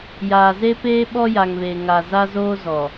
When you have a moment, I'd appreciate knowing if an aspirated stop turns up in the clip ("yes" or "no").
no